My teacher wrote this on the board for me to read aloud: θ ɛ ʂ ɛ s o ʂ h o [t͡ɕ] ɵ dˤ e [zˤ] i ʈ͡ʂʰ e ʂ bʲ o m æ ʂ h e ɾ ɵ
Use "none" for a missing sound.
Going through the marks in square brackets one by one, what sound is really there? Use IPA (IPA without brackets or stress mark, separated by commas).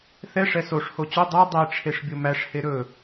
t͡ɕ, dˤ